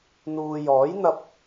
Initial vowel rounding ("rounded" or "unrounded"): rounded